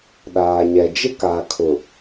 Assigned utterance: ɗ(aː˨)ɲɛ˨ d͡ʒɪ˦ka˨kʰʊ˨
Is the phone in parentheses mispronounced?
no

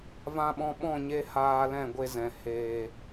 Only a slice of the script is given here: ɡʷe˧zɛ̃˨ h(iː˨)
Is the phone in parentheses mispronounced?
yes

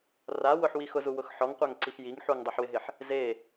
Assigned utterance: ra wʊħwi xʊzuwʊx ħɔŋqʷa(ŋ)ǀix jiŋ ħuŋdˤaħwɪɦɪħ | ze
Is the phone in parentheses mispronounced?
no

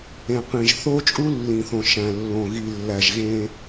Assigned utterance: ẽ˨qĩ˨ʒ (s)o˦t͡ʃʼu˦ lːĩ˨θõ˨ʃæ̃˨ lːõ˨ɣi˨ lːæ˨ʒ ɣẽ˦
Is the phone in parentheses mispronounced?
yes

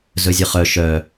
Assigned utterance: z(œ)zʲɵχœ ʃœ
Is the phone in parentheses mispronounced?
yes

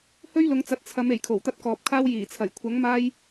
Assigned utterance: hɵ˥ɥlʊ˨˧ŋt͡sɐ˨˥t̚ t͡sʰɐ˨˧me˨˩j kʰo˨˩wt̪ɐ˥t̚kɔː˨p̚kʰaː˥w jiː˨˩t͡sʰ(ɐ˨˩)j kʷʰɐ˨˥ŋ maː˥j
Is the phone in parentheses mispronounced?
no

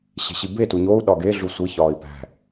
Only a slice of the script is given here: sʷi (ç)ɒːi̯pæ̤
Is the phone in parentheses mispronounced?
no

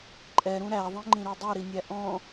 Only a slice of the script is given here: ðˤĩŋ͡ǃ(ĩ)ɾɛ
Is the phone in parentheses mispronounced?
no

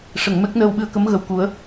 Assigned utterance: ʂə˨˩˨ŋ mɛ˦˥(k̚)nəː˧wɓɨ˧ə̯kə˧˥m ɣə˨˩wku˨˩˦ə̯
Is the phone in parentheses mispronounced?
no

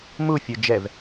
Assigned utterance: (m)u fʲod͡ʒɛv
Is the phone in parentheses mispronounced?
no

